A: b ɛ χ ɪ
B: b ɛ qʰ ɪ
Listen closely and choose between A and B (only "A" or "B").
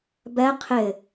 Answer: B